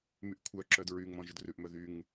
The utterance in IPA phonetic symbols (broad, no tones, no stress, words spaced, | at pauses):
myʔkʷʰœǁœd ɹyŋmɔ̃ ʒɵdrʉʔmœ ðyŋ